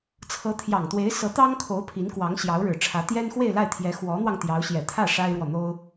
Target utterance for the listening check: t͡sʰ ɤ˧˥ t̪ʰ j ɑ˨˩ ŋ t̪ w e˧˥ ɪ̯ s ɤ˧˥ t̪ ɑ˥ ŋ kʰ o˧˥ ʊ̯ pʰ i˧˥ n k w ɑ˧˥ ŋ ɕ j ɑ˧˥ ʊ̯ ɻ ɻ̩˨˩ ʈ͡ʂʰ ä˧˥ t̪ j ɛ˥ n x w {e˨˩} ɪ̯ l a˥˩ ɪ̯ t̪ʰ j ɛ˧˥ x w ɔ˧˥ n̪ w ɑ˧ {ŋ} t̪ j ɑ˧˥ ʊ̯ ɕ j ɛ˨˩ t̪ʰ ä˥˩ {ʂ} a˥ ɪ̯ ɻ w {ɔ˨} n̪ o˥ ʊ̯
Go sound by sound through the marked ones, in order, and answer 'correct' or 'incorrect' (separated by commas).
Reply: incorrect, correct, correct, correct